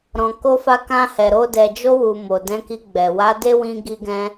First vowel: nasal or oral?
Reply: nasal